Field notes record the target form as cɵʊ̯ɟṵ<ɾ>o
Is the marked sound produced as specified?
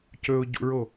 no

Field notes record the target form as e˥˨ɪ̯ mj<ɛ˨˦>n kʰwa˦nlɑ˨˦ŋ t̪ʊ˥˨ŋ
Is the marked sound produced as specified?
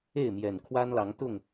no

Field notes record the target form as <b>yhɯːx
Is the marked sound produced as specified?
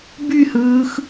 yes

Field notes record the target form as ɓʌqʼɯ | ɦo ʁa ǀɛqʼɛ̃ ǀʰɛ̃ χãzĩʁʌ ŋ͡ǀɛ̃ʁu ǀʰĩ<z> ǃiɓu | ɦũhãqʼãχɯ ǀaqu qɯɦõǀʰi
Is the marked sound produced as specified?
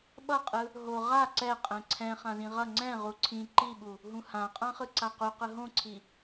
no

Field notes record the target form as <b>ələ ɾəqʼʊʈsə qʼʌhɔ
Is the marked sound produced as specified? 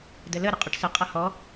no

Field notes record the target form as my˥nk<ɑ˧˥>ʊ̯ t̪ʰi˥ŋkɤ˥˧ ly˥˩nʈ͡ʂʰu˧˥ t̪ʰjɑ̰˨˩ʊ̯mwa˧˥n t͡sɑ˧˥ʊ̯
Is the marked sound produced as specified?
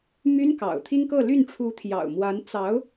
no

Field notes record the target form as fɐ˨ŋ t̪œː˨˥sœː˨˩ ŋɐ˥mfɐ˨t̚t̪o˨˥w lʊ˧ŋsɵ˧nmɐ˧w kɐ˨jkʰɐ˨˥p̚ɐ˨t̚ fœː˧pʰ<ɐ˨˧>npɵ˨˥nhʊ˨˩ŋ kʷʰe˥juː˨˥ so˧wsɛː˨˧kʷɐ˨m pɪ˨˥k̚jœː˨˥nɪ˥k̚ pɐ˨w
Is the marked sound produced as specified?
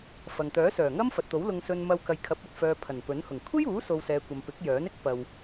no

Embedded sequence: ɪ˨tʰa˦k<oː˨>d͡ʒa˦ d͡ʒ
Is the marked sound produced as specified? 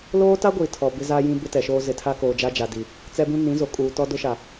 yes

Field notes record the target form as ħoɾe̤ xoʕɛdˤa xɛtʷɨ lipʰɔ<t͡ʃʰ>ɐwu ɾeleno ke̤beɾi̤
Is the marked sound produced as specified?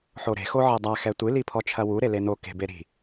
yes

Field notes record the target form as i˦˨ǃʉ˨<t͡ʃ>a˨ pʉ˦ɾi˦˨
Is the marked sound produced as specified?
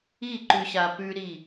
no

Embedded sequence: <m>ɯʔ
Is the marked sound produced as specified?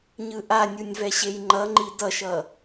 no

